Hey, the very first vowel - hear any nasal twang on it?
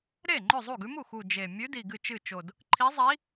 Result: no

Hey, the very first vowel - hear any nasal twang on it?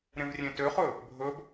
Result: yes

